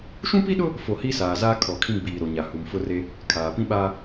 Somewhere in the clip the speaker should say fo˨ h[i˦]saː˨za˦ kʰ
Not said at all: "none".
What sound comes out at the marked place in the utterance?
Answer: i˦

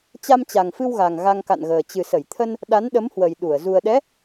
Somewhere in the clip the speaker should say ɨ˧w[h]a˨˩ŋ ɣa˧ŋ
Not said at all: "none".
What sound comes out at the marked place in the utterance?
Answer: ɣ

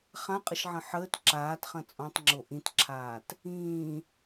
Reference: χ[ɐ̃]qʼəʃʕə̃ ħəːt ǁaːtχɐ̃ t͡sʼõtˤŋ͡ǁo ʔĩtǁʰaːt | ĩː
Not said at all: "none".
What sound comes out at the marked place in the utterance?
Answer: ã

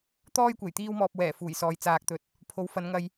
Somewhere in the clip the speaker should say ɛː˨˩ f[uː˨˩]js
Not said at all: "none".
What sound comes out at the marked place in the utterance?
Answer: uː˨˩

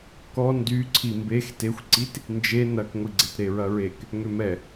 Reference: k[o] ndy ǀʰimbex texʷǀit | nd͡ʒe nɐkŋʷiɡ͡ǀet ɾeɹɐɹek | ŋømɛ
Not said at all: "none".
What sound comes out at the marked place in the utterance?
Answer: ɔ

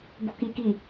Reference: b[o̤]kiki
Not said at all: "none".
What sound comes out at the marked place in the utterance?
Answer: o̤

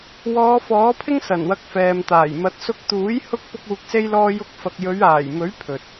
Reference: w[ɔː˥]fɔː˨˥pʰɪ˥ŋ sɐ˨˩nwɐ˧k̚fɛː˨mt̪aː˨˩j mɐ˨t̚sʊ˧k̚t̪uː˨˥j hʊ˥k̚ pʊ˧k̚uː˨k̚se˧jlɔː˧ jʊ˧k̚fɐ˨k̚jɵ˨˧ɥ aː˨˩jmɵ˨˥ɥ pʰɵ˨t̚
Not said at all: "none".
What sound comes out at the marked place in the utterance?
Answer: ɔː˨˧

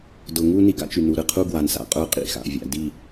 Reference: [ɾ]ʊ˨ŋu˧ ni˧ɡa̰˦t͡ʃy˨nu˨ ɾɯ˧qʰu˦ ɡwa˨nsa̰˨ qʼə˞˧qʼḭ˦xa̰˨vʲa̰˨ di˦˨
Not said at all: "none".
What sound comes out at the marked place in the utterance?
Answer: d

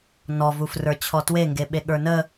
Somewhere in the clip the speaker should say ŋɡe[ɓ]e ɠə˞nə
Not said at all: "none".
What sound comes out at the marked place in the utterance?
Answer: ɓ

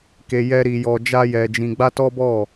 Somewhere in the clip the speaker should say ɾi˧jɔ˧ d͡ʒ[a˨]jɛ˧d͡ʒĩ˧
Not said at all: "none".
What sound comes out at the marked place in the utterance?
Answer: a˦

